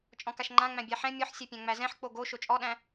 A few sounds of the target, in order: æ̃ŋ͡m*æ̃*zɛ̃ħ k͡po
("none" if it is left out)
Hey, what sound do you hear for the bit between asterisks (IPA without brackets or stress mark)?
æ